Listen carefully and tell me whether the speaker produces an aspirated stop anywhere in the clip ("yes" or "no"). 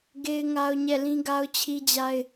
yes